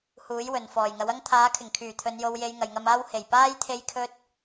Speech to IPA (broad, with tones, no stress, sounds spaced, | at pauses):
h uː˨˥ j w ɵ˨ n f ɔː˨˩ j ŋ ɐ˨˥ w ɐ˥ ŋ t̪ʰ aː˨˥ kʰ ɪ˨˩ ŋ kʰ yː˨˩ t̪ʰ ɵ˨˧ n j o˨˧ w j e˨˧ j ŋ ɐ˨ j ŋ ɐ˧ m aː˥ w h e˨˩ j p aː˥ j t̪ʰ e˥ j kʰ ɵ˥ t̚